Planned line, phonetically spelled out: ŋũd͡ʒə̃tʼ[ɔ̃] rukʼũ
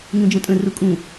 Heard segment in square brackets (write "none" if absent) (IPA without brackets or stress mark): ə̃